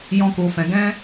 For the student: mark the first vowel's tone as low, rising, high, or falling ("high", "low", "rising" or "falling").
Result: high